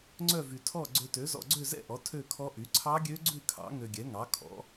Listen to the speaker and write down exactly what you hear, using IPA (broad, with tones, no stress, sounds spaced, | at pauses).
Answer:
ŋ͡ǀ œ˥˧ v y˧ tʰ ɔ˥˧ ɡ͡ǀ ø˧ t ø˨˥ z ɔ̰˧ ɡ͡ǀ ø˥˧ z ɛ̰˥˧ ʔ ɔ˨˥ tʰ ø˥˧ kʰ ɔ˦˥ ʔ y˨˥ ǀʰ ɑ˦˥ ɡʲ ø˦˥ ɡ͡ǀ ʉ˥˧ kʰ ɑ̰˨˥ ŋ ø˧ ɡʲ ɛ˨˥ ŋ ɑ˨˥ kʰ ɔ̰˨˥